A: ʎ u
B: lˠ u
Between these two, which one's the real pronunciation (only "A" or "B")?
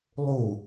B